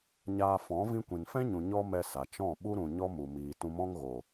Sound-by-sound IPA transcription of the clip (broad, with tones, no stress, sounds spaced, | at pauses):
ɲ aː˧ f ɔ̃˨˦ v ĩ˧ kʷ ĩ˨ n f ɛ̃˦ ɲ ũ˨ ɲ ɔ˦ m ɛ˧ s a˨ t͡ʃ ɔ̃˦˨ ɓ u˦ ɾ ũ˨ ɲ ɔ˦ m u˨ m iː˨ t ũ˧ m ɔ̃˦ ŋ ɣ o˨